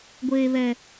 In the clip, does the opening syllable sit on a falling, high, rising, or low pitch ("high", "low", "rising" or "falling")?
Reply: high